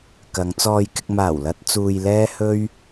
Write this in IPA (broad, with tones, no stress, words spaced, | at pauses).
kɐ˨˧ŋt͡sɔː˧jkɪ˧k̚ maː˨˩wlɐ˧t̚ t͡suː˧jlɛː˥hɵ˥ɥ